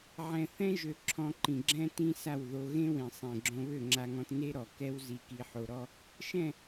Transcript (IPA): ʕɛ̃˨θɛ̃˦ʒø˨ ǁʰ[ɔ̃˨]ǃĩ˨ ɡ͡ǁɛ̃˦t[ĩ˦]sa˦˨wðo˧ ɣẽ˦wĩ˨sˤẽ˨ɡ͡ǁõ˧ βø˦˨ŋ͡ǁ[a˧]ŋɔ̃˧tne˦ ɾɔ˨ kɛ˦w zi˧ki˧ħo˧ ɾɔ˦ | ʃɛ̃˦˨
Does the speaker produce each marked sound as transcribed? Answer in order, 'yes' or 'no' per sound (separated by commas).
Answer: no, yes, yes